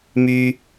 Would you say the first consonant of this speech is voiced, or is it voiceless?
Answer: voiced